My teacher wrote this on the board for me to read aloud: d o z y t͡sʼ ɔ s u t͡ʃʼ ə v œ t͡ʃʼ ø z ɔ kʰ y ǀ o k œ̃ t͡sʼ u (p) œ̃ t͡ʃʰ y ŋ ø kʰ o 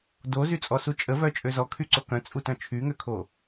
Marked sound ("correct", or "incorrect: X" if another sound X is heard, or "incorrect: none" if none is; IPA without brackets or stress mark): incorrect: t